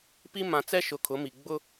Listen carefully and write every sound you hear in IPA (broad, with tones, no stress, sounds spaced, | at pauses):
p i˦ m ã˨ t͡s ɛ˦ ʃ ʊ˨ kʰ ʊ˨˦ m i˨ ɡ͡b ʊ˦